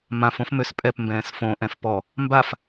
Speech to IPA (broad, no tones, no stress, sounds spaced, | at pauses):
m ã f õ f m ø s pʼ ɛ p m b ɛ̃ː s f õ ʔ ɛ̃ f p ɔ | m b a f